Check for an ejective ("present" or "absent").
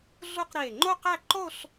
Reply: absent